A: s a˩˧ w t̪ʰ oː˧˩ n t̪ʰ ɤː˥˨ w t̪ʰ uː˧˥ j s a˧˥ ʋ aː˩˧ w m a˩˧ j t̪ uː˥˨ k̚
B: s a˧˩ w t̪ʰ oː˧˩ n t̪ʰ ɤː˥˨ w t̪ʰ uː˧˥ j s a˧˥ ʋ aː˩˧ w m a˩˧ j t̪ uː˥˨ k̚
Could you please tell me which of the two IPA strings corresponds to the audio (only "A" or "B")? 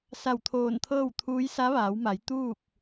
B